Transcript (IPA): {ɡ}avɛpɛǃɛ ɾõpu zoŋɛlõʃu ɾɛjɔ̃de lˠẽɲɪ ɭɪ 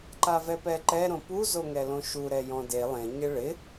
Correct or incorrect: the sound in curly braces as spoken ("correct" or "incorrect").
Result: incorrect